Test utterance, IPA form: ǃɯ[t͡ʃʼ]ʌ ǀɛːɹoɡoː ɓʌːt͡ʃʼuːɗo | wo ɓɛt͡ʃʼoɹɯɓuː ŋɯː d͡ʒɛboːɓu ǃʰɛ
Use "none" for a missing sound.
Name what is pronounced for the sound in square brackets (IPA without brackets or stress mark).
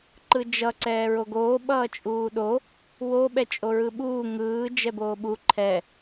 d͡ʒ